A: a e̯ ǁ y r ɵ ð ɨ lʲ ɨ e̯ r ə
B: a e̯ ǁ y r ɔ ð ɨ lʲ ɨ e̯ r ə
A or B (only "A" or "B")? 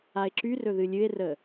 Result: A